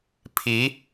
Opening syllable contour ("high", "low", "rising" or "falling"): rising